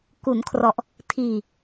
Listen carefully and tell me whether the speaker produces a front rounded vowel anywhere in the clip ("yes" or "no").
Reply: no